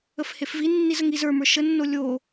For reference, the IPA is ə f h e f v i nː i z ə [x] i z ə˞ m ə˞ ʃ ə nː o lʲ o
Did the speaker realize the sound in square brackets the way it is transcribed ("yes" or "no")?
no